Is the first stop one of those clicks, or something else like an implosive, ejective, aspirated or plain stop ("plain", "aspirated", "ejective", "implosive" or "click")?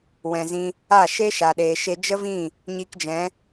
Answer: implosive